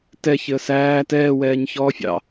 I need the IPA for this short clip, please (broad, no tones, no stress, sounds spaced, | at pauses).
t ɛ ç ɪ ə̯ s æː t ɛː w ɛː ɲ ç ɔː fʲ ɑ̰